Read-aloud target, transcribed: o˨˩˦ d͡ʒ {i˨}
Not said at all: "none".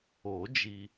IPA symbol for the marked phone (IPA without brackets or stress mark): i˨